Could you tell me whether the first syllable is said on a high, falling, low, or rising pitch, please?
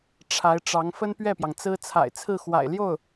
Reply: rising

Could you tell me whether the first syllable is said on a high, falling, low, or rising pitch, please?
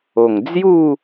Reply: low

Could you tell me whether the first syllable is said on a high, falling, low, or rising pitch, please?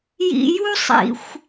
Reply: low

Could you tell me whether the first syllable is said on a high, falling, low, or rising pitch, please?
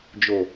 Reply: low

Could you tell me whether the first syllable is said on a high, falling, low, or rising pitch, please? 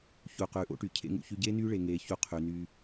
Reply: low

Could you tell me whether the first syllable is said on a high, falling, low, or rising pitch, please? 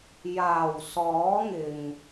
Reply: low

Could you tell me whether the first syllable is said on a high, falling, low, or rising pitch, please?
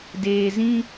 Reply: low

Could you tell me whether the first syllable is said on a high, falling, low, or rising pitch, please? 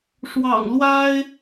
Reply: low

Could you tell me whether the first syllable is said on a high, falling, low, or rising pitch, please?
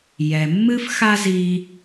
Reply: low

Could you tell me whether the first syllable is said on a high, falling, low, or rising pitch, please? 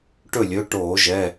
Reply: falling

